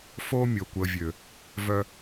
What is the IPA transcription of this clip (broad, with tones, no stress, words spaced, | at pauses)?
fo˦mʲo˨kʷə˨vʲø˨ | vœ˦